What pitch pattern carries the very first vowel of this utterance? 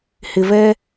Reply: low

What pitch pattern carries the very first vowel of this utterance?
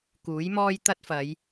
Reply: rising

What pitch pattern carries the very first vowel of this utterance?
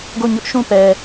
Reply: falling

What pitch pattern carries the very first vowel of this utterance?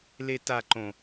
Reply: high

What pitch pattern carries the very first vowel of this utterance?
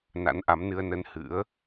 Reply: rising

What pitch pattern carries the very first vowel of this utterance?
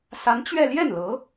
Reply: rising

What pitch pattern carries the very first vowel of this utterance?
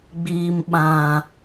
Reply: low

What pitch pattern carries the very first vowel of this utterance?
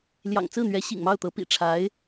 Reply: low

